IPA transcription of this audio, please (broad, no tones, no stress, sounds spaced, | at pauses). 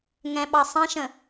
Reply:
ŋ ɛ̃ ɓ ɑ sˤ ɛ̃ ʃ ə̃